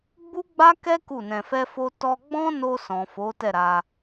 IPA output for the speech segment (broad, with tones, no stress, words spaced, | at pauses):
ɡ͡bu˦ɡ͡ba˦ kɛ˦ ku˦˨nɛ̃˧fɛ˦fo˦ tɔ˧ɡ͡bɔ̃˦no˧ sɔ̃˨fo˨˦ tɛ˦˨ɾa˧